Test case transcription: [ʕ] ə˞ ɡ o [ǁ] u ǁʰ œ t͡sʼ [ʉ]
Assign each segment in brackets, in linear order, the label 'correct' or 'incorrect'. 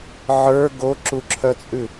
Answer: correct, correct, correct

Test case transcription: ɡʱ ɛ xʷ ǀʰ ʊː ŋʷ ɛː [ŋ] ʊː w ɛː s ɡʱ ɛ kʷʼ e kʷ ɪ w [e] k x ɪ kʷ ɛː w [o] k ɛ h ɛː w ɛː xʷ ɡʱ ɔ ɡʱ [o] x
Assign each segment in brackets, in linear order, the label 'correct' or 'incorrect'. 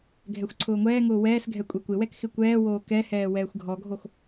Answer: correct, incorrect: ɛ, incorrect: oː, correct

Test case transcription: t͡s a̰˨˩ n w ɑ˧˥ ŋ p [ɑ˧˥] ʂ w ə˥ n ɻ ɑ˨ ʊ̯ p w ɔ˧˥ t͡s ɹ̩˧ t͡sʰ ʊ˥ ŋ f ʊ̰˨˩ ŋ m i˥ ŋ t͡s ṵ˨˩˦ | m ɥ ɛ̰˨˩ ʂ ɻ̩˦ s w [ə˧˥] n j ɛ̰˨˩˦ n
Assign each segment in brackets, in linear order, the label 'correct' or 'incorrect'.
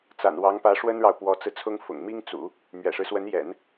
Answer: incorrect: ä˧˥, correct

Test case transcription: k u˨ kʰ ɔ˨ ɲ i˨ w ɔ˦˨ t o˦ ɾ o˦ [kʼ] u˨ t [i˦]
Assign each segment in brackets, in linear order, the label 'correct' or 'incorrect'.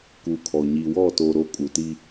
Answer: correct, correct

